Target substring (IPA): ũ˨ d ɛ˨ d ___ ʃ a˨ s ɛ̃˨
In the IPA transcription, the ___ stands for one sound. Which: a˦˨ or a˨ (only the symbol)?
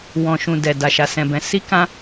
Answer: a˨